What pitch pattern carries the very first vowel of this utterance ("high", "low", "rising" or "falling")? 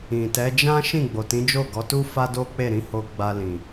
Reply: low